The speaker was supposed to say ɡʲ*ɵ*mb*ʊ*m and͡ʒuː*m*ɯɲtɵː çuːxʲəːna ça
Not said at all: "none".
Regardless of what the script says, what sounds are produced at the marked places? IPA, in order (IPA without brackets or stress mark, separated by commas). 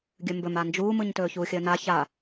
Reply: ɵ, ɵ, m